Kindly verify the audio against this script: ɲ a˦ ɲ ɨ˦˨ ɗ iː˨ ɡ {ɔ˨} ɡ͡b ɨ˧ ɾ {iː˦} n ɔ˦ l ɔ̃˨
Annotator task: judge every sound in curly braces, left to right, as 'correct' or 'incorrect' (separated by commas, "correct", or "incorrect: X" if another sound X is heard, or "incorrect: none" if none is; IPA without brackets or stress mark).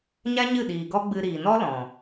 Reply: incorrect: ɔ˦, incorrect: iː˨